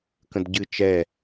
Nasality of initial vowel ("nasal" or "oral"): nasal